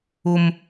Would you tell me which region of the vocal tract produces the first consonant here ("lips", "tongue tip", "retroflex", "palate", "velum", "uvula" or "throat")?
lips